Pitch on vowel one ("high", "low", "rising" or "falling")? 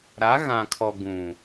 rising